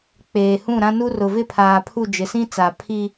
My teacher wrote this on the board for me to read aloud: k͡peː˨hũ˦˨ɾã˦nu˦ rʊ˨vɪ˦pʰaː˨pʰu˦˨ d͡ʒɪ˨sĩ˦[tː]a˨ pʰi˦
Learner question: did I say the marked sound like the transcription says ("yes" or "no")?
no